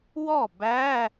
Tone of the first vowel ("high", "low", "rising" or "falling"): falling